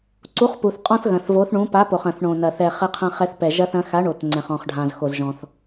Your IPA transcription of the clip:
ǀu˨˥χpu˩θqʼɔ̃˦θ ɣɐ̃˩θvo˨˥θɳũ˨˥ pa˨˥po˩χɐ̃˩θ ɳõ˩nɐ˩ θɛ˩ χɘ˦qʰɐ̃˦χɛ˦θ pɛ˩ʒɐ˦θɐ̃˨˥ xa˨˥ɳo˩t ŋ͡ǀɛ̃˩χɔ̃˩χɖʱã˩z xo˩zʒɔ̃˩θ

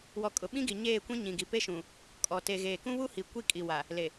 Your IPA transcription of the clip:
wɔ˨ kʼʊ˨ɓĩ˦ɡi˨ ɲeː˦˨kʷĩ˦ ɲĩ˨ɡi˨pe˦ ʃũ˨ | kʼɔ˨ te˨ɣeː˨ kũ˦βu˦hi˨ kʷi˦˨kʼi˨wa˨ | le˨

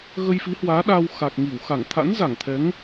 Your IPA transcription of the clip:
ɣə˧jfi˨˦hwaː˨˦ɗa˧w xa˨˩k̚ŋi˧˩wxa˧˩ŋ t̪ʰa̰˧˥nza˧˩ŋt̪ʰɛ˨˦ŋ

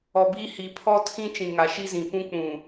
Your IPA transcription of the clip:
ɔ˨biː˦ hi˨pʰɔ˦tʰĩ˦ t͡ʃĩ˨ŋa˨ʃi˦zĩ˨ pũ˦k͡pũ˨

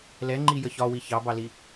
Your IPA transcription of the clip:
lɛŋ͡ǃijə çɒwi çɑbɑli

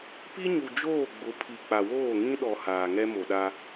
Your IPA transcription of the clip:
pi˦ɲu˨ d͡ʒoː˦˨ɡ͡bʊ˨˦pʰi˨ k͡pa˨woː˦˨ŋĩ˦ ɗɔ˨ haː˨ŋɛ˦mo˨ɗa˦

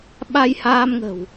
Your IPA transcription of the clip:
ɓa˧jhaː˧mŋə̤˨˩w

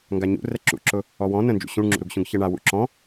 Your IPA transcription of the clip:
ŋɡaɲṵ rɛǁṵǁʊ | ɔwɔ̃ nə̃nd͡ʒṵ ɕũɳŋ͡ǁṵɾuɡɕũɡ çɛɳa wṵǁɔ̃

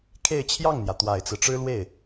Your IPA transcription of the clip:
kʰe˥˧ɪ̯t͡ɕʰjɑ˥˩ŋn̪jä˩ t̪wa˨˩ɪ̯t͡sɹ̩˦ʈ͡ʂɻ̩˥lwe˥˩ɪ̯

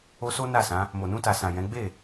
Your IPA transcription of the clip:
o˧so˦na˦˨sã˨˦ | mo˨nũ˧ta˨sã˨ jɛ̃˨˦ ɡ͡be˦˨

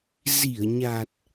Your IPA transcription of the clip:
zi˧˩ə̯ɲa˨˩t̚

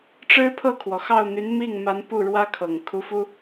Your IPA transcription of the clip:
ʈ͡ʂɻ̩˥pʰɤ˥˩kʰwɔ˩xɑ˥˩ʊ̯ n̪y˧˥nmi˥˩ŋ ma˧˥npu˥˩ ɻwä˥kʰɤ˨˩ŋ kʰu˧˥fu˥

